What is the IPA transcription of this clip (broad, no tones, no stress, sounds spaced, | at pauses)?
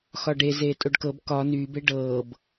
x ɒ ɖ e z eː tʼ o ɖ k ɤ b k ɒ n yː b e ɖ ɤː b